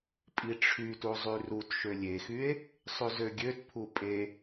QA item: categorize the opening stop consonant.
ejective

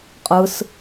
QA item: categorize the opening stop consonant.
ejective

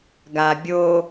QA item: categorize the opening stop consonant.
plain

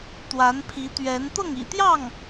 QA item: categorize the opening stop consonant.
plain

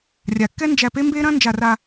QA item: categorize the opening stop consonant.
plain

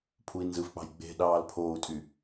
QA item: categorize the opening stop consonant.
aspirated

